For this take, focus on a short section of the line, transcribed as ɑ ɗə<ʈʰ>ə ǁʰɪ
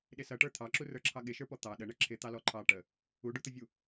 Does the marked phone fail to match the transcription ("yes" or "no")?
yes